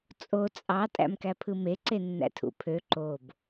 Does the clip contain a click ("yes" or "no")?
yes